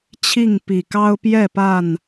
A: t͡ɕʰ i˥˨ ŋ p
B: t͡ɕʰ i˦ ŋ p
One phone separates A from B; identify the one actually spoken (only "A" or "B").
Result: A